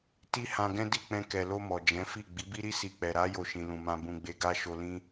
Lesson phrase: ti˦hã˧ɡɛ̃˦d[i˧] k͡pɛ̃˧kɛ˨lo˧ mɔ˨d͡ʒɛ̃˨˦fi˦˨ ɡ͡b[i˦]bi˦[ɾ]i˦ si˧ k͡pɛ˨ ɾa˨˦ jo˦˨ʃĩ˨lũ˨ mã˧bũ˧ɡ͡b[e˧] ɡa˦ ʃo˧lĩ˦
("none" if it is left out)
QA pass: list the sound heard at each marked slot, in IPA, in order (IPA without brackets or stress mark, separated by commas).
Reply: i˦˨, i˨˦, ɾ, e˧